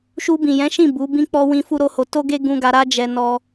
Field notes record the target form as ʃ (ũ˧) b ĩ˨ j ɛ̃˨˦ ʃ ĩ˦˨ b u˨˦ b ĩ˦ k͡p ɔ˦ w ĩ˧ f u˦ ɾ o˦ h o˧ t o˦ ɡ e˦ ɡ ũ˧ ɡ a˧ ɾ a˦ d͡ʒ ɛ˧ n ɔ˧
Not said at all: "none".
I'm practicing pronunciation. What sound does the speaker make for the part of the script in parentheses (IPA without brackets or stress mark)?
u˧